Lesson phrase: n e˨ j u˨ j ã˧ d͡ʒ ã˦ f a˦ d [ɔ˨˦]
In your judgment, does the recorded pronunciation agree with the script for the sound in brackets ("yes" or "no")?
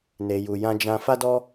no